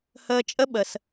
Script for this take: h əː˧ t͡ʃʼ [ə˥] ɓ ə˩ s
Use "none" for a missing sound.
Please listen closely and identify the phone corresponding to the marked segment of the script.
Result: ə˥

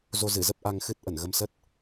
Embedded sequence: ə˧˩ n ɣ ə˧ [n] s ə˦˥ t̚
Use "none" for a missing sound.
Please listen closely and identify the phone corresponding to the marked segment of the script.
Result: m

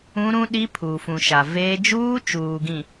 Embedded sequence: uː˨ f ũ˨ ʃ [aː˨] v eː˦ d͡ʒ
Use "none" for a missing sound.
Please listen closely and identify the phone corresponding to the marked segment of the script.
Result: a˨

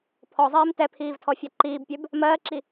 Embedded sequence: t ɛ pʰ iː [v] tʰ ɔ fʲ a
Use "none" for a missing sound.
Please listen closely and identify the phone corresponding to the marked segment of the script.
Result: v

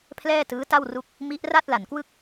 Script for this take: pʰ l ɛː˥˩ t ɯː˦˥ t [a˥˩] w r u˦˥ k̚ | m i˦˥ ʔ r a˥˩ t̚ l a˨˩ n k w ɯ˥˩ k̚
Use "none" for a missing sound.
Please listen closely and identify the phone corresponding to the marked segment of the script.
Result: a˥˩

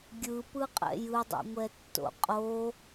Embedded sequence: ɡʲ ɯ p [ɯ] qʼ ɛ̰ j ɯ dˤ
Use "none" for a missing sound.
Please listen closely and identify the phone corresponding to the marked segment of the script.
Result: ɯ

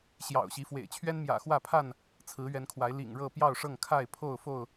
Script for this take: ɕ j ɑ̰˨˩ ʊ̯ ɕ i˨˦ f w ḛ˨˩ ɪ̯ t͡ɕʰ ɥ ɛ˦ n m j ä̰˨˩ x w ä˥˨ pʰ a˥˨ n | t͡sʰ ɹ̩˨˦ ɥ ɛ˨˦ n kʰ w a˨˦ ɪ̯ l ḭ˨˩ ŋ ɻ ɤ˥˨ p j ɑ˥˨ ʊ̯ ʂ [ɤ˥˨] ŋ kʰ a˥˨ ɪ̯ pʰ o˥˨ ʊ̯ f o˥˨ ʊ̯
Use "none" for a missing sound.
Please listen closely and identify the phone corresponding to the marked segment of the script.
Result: ɤ˥˨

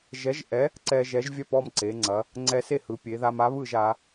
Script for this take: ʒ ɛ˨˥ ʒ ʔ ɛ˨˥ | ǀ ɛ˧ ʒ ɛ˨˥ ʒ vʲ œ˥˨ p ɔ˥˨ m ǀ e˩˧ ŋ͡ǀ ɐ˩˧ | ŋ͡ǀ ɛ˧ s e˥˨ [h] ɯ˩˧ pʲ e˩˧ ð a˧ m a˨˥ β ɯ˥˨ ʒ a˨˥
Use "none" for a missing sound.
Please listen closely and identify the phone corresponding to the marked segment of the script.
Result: h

